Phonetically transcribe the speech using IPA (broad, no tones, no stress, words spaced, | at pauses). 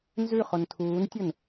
nzʉχon tʰuːntʲʊn